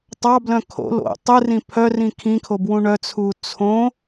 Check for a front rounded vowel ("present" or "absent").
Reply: present